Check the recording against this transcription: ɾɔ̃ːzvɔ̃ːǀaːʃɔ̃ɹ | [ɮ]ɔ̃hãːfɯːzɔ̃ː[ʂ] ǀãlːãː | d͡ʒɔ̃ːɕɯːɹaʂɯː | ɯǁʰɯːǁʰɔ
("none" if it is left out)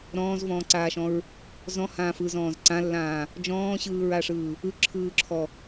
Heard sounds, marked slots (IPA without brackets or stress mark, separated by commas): z, z